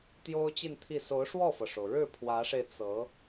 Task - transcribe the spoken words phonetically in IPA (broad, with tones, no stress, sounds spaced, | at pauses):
t̪ j o˥ ʊ̯ t͡ɕ i˥˧ n t̪ʰ i˥˩ s o˧˥ ʊ̯ ʂ w ɔ˥˩ f ɤ˩ ʂ o˩ ʊ̯ ɻ ɻ̩˥˩ pʰ w ä˧˥ ʂ e˧ ɪ̯ t͡s ɤ˧˥